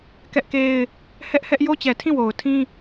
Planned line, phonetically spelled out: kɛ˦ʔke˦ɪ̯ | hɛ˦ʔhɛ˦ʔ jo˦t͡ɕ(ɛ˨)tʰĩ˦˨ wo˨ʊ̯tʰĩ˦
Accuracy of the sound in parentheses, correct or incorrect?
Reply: correct